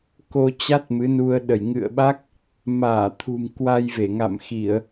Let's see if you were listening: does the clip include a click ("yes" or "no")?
no